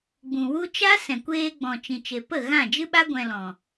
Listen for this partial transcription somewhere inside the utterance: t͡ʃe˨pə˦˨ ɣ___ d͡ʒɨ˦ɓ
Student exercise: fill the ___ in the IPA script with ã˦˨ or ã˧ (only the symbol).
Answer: ã˦˨